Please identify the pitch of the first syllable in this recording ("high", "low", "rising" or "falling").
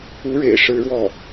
high